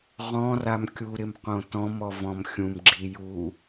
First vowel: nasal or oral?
nasal